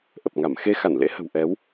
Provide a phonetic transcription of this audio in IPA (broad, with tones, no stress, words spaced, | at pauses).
ʔə˨˩p̚ŋa˧˩m xe˧ xa˧˩nlḛ˧˥hə̤˨˩w ʔɛ˨˦w